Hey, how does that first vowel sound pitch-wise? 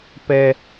high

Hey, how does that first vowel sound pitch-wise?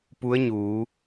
rising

